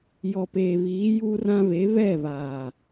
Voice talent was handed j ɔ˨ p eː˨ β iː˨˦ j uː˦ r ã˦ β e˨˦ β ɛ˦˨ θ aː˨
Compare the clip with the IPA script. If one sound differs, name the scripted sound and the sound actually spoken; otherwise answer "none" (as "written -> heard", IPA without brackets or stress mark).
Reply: θ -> β